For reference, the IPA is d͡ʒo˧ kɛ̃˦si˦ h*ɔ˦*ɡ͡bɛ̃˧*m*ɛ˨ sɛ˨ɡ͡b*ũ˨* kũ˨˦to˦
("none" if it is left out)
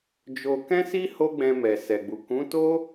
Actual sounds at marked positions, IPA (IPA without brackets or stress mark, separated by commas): o˦, m, u˨